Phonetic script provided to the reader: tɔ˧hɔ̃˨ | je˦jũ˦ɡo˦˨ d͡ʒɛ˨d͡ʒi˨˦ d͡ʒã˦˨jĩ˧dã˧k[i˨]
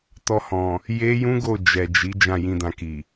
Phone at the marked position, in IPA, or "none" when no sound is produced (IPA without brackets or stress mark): i˨